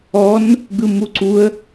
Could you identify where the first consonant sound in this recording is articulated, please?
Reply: alveolar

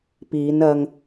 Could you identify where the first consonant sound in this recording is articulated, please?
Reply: labial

